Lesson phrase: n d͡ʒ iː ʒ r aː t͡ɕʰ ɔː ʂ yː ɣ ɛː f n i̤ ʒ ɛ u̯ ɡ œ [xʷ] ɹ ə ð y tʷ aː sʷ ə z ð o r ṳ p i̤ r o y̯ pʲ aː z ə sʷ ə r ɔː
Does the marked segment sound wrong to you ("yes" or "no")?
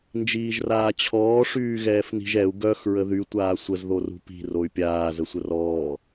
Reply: yes